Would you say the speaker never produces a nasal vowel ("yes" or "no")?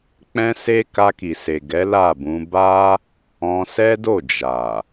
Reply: no